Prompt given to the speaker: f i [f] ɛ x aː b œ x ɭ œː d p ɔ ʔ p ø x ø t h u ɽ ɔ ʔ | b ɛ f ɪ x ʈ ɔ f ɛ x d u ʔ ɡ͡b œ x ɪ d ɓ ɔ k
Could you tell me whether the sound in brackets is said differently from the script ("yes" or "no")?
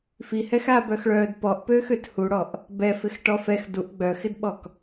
yes